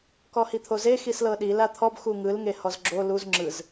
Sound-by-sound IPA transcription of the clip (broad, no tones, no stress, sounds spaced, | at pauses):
k ɔ h i t̪ʰ o z e x i s l ɤ ɗ i l a t̪ʰ ɔ b x u ŋ ɯ l ŋ e h ɔ z ɡ͡ǁ o l u z ŋ͡ǁ ɯ z